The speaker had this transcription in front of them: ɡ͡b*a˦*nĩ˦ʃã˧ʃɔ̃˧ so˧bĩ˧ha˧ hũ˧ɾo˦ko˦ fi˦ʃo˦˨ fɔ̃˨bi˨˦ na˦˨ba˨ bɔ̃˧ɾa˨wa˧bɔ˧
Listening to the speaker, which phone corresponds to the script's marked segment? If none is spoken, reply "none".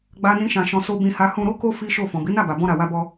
a˦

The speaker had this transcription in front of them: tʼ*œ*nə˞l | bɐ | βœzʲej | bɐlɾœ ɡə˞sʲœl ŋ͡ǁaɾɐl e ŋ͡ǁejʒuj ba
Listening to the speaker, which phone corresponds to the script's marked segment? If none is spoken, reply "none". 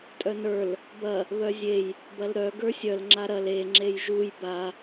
œ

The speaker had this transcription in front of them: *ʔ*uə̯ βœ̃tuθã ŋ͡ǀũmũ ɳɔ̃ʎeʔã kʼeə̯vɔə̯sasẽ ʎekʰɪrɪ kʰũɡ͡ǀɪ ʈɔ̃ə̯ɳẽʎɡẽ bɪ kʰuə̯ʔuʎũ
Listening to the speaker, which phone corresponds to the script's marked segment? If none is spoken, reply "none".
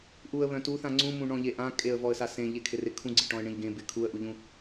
ʔ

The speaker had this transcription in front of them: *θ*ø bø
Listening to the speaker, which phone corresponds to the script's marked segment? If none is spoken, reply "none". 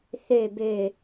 θ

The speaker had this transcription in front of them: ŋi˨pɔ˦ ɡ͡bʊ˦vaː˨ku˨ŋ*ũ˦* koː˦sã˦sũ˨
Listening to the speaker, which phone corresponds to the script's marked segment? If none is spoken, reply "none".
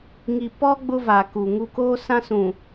u˦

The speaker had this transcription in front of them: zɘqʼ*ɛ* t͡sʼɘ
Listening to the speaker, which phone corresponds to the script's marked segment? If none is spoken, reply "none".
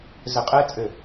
ɛ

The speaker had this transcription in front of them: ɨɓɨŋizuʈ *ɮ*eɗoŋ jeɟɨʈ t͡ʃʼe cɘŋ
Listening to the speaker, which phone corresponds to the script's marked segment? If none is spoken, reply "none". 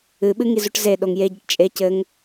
z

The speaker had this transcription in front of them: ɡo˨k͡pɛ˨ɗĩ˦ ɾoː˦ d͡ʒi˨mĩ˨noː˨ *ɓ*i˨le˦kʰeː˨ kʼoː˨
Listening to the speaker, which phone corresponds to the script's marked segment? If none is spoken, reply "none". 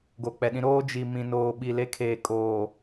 ɓ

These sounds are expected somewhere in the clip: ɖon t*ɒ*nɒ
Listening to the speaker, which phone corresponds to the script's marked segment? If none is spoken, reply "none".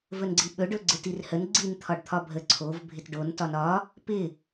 ɒ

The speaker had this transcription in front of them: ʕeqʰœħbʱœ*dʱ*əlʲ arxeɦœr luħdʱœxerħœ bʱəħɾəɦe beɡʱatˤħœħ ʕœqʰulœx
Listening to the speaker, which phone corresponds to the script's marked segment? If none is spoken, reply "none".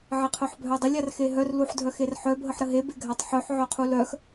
dˤ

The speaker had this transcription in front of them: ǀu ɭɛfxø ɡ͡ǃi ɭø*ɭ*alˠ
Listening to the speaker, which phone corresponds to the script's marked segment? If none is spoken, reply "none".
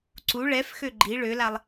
l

